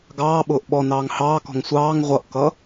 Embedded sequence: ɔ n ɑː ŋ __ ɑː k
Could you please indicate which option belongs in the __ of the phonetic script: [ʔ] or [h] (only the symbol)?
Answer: h